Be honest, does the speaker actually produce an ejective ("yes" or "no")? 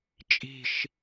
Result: yes